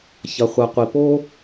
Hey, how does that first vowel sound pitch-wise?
low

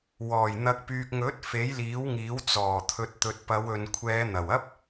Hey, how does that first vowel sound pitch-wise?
low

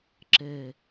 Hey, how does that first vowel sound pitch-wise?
low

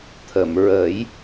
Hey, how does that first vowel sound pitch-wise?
low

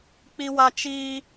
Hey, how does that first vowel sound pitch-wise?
high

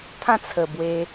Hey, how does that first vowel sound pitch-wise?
falling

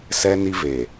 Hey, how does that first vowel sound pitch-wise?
high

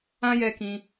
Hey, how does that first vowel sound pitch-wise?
high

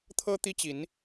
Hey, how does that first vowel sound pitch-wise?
high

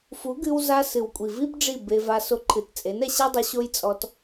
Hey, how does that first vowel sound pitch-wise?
rising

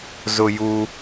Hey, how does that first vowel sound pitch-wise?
high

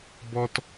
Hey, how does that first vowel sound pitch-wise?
high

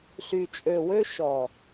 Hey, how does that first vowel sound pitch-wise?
low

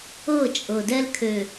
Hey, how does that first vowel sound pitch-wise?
falling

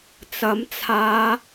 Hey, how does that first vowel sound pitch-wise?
rising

